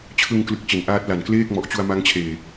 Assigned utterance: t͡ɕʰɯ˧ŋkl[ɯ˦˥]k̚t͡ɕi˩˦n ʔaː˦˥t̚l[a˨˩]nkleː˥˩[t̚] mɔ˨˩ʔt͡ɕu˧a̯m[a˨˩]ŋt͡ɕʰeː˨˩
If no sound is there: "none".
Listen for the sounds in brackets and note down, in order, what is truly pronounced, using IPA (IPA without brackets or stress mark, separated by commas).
ɯ˨˩, a˨˩, k̚, a˦˥